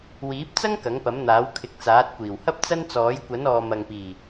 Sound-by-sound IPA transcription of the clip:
w iː˨˥ p̚ t͡s ɐ˥ ŋ k ɐ˨˥ ŋ p ɐ˨˥ m n̪ aː˨˥ w kʰ ɪ˨˥ k̚ t͡s aː˨˥ t̚ kʷ iː˨˩ w h ɐ˥ p̚ t͡s ɐ˥ n t͡s ɔː˨˥ j kʷ ɐ˨˥ n ɔː˨ m ɐ˨ ŋ p iː˨˩

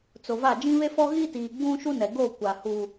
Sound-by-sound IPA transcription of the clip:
t͡s o˨ v a˦˨ d͡ʒ ĩ˦ β e˦ f ɔ˦ ɣ i˦ t iː˨ ɡ͡b ũ˦ ʃ u˦ n ɛ˨ ɡ o˦˨ kʷ a˨ h u˦

